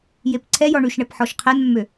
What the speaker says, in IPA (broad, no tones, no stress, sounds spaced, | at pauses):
j e p ǀʰ ɛ j ɔ ɳ y ʃ ɳ ɛ p ħ ɔ ʃ qʰ ɛ n mː ø